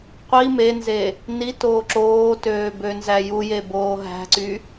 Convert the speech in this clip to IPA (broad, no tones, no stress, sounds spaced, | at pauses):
qʷ i m e n z e | n i t oː ǁ oː t øː b ø n z æ j u j e b oː ɦ æ̤ ǀ y